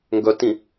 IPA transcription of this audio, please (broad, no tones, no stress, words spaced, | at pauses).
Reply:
ŋɡœtĩ